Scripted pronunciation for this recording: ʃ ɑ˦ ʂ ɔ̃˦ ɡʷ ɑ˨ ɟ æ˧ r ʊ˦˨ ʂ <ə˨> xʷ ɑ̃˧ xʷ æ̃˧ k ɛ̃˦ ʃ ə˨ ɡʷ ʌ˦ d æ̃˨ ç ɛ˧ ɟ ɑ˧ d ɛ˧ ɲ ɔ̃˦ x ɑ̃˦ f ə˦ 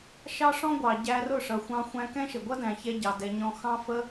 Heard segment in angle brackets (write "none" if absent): ʌ˨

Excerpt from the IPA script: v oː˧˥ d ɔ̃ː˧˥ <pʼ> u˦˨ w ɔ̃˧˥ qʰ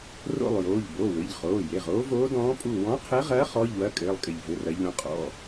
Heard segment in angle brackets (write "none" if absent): pʼ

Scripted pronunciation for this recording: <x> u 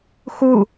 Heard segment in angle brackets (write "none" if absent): x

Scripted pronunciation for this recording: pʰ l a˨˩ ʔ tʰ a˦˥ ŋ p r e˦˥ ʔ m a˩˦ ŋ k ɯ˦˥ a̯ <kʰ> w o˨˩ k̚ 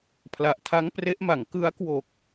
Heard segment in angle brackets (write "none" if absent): k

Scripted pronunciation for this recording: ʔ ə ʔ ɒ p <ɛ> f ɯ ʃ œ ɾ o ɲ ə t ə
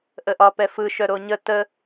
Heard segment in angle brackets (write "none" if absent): ɛ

